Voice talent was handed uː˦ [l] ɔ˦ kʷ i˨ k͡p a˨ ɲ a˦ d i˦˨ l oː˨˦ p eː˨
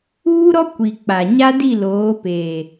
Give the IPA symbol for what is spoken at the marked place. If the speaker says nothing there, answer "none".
ɾ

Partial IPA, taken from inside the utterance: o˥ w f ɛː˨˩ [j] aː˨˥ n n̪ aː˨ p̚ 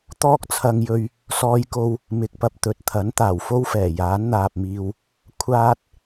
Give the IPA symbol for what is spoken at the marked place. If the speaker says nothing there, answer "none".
j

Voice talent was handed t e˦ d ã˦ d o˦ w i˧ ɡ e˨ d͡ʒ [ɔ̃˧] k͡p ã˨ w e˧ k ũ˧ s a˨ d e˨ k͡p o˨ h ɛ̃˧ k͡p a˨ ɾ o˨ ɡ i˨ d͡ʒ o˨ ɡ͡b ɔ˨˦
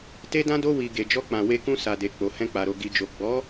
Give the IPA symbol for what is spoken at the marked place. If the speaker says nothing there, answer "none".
ɔ˧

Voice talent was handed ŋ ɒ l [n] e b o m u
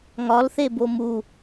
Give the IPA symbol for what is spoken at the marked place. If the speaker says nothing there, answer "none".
θ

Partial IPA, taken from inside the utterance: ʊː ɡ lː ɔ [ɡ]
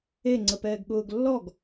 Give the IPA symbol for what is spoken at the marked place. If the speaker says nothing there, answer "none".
ɡ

